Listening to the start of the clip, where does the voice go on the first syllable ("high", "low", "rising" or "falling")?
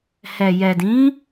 low